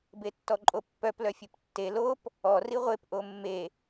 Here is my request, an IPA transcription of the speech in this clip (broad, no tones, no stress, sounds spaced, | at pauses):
b e tː ɔ ǃʼ o pː œ p l œ fʲ ʉ p tː e l o p | ɔ r i ʁʷ e p ʔ o mː e